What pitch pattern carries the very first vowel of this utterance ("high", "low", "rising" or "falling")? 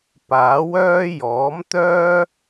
rising